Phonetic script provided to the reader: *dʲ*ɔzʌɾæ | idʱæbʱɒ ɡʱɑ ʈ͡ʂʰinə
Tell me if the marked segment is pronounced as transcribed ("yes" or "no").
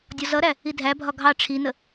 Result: yes